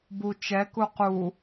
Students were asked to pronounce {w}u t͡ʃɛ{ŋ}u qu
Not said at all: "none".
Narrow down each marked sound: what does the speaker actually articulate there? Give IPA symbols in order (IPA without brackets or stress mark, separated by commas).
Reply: b, k